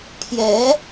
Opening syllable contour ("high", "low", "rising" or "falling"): rising